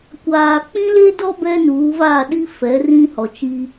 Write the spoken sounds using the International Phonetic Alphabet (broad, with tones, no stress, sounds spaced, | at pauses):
kʷ aː˨ k͡p ĩ˦ l e˦ d ɔ˦ b ɛ˦ n uː˨˦ v a˦˨ ɗ i˦ f ɛ˨˦ r ĩ˦ h ɔ˨ t͡ʃ i˦